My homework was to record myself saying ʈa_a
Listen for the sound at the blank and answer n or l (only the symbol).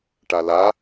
l